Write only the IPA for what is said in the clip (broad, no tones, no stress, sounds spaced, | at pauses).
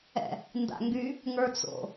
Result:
ɛ̰ | n d a̰ ŋ ɡ y | ŋ ə˞ t͡s o̰